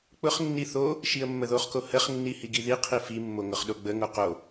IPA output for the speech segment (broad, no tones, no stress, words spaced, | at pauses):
k͡pʊχnːi θo | ʃiə̯mːəðoχko həχ nːihiɡiði qʰifimːo ŋʊχɗoɡ͡bəŋo qo